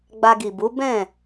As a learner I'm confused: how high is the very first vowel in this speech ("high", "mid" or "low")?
low